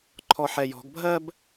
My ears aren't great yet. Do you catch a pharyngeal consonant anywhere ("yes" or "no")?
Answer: yes